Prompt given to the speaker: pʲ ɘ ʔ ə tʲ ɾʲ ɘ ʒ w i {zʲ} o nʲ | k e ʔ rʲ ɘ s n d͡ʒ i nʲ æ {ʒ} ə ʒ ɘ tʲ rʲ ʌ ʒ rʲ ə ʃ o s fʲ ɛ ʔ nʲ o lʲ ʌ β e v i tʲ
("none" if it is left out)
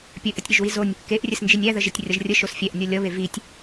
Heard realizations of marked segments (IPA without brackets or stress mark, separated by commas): z, ð